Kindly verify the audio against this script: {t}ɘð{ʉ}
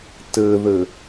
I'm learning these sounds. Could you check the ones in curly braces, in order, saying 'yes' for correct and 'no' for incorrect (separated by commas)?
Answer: yes, no